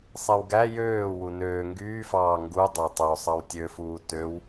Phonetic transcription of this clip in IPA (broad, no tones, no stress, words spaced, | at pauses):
sˤewɡæ jøː wunøː ŋɡyːfɑː ŋɡu dˤætˤo sˤɑwtʲøfuː tøw